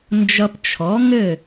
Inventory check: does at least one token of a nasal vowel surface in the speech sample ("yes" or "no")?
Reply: no